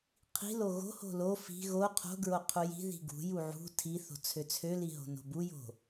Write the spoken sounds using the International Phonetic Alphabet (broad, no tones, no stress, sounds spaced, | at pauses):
qʰ i̤ l o ɣ o̤ h o̤ l o f i̤ ɣ o qʰ o̤ ɡ ɹ o qʰ u j i̤ ð i̤ ɡ ṳ j u ʕ ṳ tʰ i θ o̤ t͡sʰ ø t͡sʰ ø l i ɦ o̤ n o̤ b u j o̤